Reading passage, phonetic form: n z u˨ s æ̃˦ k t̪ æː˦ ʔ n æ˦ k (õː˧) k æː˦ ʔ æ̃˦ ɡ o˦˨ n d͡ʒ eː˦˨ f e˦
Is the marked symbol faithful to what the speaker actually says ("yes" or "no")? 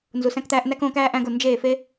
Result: yes